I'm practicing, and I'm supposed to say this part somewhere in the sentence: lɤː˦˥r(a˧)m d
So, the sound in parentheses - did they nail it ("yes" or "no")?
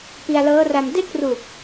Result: yes